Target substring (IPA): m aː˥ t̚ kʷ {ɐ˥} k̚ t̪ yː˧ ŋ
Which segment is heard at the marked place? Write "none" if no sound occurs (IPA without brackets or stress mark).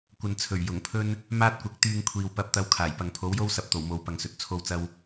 ɐ˨˥